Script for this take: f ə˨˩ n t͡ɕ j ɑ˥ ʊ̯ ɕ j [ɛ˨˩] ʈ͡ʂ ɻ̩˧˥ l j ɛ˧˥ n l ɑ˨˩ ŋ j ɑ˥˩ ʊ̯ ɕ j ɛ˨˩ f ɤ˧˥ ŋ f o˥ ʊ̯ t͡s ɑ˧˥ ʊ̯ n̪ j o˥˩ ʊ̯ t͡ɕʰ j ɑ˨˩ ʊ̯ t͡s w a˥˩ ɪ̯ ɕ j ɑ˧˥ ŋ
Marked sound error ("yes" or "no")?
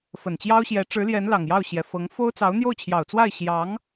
yes